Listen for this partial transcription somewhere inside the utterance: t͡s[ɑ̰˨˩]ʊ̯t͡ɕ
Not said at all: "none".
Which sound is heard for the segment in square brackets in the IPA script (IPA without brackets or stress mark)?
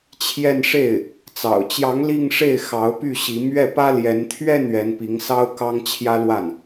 ɑ̰˨˩